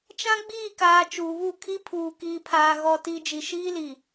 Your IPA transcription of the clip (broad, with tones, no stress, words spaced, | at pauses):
t͡ʃã˦ɡ͡biː˦˨kaː˨ t͡ʃuː˨βu˦˨ kʰi˦pʰuː˨ kiː˨pʰaː˨ ɣɔ˨ti˨ d͡ʒi˨ʃiː˦li˨